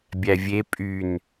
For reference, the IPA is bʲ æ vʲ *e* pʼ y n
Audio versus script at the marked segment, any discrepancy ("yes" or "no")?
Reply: no